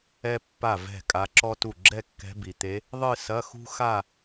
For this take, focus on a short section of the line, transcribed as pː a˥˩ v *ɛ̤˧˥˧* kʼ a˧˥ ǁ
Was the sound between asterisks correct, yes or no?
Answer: no